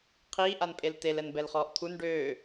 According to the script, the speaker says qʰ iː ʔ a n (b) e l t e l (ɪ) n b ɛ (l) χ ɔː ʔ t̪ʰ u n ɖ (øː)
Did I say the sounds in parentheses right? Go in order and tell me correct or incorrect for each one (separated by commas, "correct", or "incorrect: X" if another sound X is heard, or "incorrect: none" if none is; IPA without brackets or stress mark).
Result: incorrect: pʼ, incorrect: ɛ, correct, correct